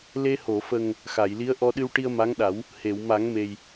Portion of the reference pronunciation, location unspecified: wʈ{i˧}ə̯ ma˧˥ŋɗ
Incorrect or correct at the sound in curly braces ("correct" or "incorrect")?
correct